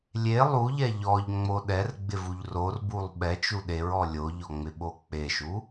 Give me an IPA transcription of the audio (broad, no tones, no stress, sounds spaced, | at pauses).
lʲ e lˠ u ʎ ɛ ʎ ɔ ʎ ŋ͡m o ɗ ɛ r ɡ͡b ɪ v u ʎ r o r b u lˠ ɓ ɛ t͡ʃ u ɗ e ɹ ɔ lʲ o ʎ ɔ ŋ͡m ɪ ɓ o k͡p e ʃ u